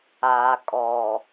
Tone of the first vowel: low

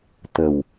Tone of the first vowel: low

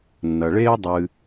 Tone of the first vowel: low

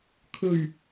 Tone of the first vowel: low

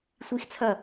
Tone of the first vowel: high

